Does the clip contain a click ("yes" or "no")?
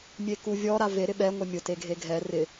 no